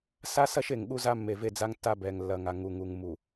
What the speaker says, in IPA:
s a˦ s ɐ˦ ʃ e˨ ŋ ɠ u˦ z a˦ mː e˨ v e˦ d͡z a˦ ŋ tː a˦ b ɛ˨ ŋ lː ɐ˨ ŋ a˨ ŋ u˨ ŋ u˨ ŋ m u˨

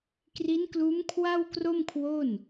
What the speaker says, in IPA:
k r i˦˥ n k l uː˦˥ m kʰ w a˥˩ w k r o˥˩ m kʰ w o˥˩ n

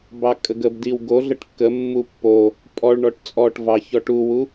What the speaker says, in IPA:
b ɑ kʼ ə ɡ ə b d i w ɡ o ɮ ə ʈ kː ə mː u pː o | pʼ ɔ ɭ ɳ ɔ ʈ t͡sʼ ɔ ʈ v ɑ ç ɔ ʈ u w u

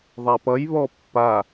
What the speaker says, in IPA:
ðˤ a p ʌ j β ɔ pː a

